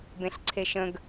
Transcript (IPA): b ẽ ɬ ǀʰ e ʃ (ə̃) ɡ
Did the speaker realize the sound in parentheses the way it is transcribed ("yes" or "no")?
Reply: yes